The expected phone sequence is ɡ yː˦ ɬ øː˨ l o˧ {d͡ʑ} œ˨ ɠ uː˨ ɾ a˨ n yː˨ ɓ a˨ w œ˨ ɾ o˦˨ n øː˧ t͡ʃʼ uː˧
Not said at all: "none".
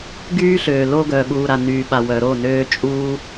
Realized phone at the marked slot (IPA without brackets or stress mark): ɡ